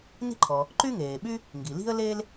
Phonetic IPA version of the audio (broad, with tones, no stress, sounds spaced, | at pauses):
n i̤˥ ǃʰ ɔ˩ | ǃ y˥ ŋ eː˩ ɓ y˥ | ŋ ɡ i˩ l i̤˥ ə̯ l e˥ l